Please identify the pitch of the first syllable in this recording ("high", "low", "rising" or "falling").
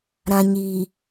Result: low